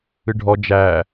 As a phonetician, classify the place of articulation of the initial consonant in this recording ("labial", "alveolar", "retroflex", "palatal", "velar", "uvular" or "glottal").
retroflex